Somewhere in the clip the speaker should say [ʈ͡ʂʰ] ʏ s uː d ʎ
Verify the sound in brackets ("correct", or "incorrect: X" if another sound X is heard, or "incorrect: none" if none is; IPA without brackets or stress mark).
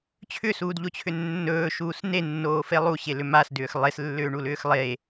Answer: incorrect: t͡ɕʰ